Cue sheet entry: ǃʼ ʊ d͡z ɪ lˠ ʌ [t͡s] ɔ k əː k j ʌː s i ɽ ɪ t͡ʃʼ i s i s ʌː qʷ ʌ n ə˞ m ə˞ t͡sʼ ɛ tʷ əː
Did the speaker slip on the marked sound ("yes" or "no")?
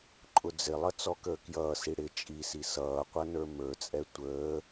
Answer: no